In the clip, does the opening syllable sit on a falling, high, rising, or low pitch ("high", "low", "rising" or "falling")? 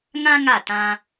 high